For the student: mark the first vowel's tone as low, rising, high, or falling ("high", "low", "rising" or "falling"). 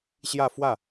falling